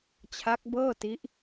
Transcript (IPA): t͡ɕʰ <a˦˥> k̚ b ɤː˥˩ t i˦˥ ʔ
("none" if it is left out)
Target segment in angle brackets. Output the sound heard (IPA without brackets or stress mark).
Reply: a˦˥